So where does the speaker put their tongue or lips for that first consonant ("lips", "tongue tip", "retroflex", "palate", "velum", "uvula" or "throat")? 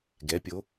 velum